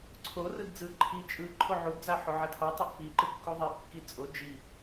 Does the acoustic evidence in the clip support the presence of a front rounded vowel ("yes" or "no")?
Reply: no